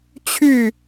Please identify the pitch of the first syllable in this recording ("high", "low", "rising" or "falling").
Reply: falling